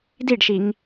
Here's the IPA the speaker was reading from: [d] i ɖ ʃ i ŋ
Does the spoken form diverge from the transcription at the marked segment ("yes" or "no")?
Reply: no